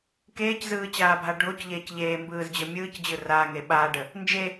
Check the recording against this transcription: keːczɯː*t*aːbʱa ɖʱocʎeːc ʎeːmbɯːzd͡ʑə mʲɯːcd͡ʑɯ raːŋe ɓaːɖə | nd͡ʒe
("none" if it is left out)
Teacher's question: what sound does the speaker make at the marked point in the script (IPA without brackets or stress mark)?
t͡ɕ